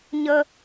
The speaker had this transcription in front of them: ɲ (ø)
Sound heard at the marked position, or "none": ə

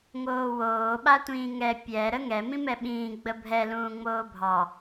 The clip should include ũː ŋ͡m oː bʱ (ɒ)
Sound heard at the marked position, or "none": ɑ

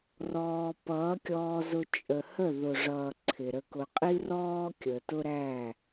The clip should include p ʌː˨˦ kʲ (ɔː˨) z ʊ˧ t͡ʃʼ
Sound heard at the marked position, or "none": ɔː˧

